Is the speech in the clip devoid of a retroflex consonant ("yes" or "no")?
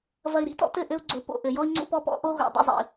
yes